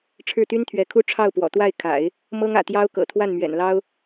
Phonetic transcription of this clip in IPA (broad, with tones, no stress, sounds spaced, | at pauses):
ʈ͡ʂʰ ɻ̩˥˩ t̪ y˥ n t̪ʰ ɥ ɛ˧˥ kʰ u˥ ʈ͡ʂʰ ɑ˥˩ ʊ̯ p w ɔ̰˨˩ t̪ w a˥˩ ɪ̯ kʰ a̰˨˩˦ ɪ̯ | m ɤ˥ ŋ ä̰˨˩ t̪ j ɑ˥ ʊ̯ k ɤ̰˨˩ t̪ʰ w a˥˩ n m ɥ ɛ̰˨˩ n l ɑ˥ ʊ̯